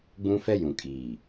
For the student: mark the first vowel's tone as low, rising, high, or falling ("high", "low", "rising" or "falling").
high